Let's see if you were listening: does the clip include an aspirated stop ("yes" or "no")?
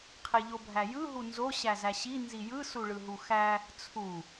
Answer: yes